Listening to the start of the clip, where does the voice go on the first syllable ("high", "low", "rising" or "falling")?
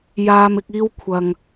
high